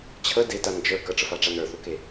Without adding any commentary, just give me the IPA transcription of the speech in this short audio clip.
t͡ɕʰ ə d e t a n d͡ʒ ə˞ k ə ʈ͡ʂ ə f a ʈ͡ʂ a n ə˞ θ u k e

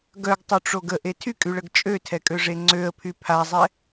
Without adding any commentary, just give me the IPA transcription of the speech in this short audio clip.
ɡ œ ɡ tˤ u ʈ͡ʂ o ɡ ə ʔ e tʰ y kʼ y ɭ ə ɡ t͡ʃʼ ø tʰ ɛ kʼ ø ʐ e ŋ͡ǀ ø ə̯ pʰ y pʰ a zˤ ɛ

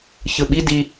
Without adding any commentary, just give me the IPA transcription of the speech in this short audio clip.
ç ɯ ɓ i d i

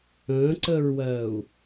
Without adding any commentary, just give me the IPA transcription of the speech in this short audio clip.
ə̃ː ǀ əː ɹ w ɜː u̯

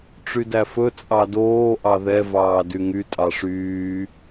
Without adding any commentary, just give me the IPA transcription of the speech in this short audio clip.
ʈ͡ʂ y d æ f ɵ t͡sʼ ɑ d oː ʔ ɑ ð ɛ v ɑː d y ŋ y tʼ ɑ ʂ yː

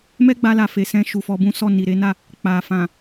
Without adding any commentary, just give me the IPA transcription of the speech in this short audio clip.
m ɛ˦ ɡ͡b a˧ l a˨ f e˨ s ɛ̃˧ ʃ u˨ f ɔ˧ b ũ˦ s ɔ˦˨ n i˨ ɾ e˨˦ n a˦˨ | k͡p a˨ f ã˨

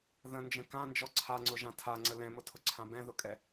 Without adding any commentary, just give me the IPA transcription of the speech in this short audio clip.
ð ə̃ n d͡ʒ ə̃ k ã n d͡ʒ ɔ ǀʰ a ŋ͡ǀ ʊ ʒ ã tʰ a ŋ͡ǀ ə l ɛ̃ m ʊ tʰ ʊ ǀʰ ã b ɛ̃ ð ʊ kʼ ɛ

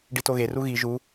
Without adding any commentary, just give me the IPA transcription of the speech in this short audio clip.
ɖ i t o ɣ e r u ɣ i ʒ u

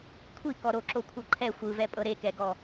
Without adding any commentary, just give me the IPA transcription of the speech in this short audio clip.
kʷʰ i k ɔ ɾ o ǁ o kʷʰ ɤ ǃʰ ɛ xʷ ɯ v ɛ pʼ ɤ ɾ e k ɛ ɡ ɔ

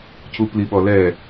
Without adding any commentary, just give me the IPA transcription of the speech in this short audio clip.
c u p l i ɓ ɔ l ɛ

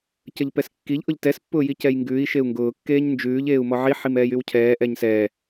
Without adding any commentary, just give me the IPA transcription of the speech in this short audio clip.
c ə ʎ p ɛ s kː i ʎ ʔ ʊ ʎ t ɛ s pː ʊː j i c ɛ j ŋ ɡ ʉː i̯ ʃ e u̯ ŋ ɡ ʊː kː eː ɲ n d͡ʒ ʉː ʎ eː u̯ m ɔ ʕ i ħ i m ɛː j y w cʰ ɛː ʔ ɛ ɲ s ɛː

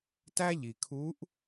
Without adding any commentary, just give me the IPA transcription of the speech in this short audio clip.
t æ˥ ʎ i˩ kʰ u˧˥ ʔ

